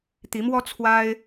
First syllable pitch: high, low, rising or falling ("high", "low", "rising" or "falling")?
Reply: rising